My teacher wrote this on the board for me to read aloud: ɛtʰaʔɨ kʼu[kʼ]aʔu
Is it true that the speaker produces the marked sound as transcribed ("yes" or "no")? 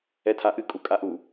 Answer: yes